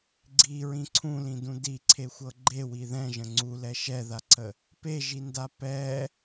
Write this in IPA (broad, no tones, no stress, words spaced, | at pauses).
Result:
ɡ͡ǀiɹĩ ǀʰũlĩdũ diǀʰexʷɤ ɡ͡ǃewi ðɛ̃ʒə̃ ŋ͡ǀulɛ ʃɛðaǀʰə | peʒinda pɛ